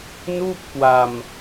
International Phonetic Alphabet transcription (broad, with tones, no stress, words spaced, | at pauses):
nuː˥˩p̚kwa˧m